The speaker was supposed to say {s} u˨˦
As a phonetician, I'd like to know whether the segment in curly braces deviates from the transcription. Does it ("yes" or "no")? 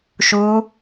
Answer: yes